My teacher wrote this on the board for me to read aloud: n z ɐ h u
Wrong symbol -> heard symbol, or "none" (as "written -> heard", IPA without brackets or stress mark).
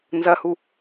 none